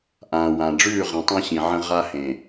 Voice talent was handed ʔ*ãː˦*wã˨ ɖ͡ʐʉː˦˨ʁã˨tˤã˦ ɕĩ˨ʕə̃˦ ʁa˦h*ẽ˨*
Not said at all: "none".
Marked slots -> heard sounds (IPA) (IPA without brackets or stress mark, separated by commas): ãː˨, ẽ˨